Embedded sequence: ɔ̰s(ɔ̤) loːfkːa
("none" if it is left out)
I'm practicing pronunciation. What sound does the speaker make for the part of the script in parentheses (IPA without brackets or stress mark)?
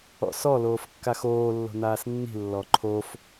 ɔ